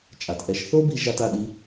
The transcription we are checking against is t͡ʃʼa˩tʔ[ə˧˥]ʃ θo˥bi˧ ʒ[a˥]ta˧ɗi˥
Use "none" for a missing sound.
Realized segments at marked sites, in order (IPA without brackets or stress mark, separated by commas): ɛ˧˥, a˥